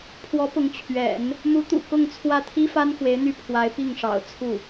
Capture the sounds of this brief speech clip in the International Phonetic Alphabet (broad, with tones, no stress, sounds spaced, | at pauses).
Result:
pʰ w ɔ˧˥ p ʊ˧˥ ŋ t͡ɕʰ ɥ ɛ̰˨˩˦ n | m u˧˥ t̪ ṵ˨˩ k ʊ˥˧ ŋ t͡sʰ w ä˥˩ t̪ʰ i˥ f a˥ n x w e˧˥ ɪ̯ n̪ y˥˩ pʰ w a˧˥ ɪ̯ p i˥˩ ŋ ʂ ɑ̰˨˩ ʊ̯ t͡sʰ u˥˩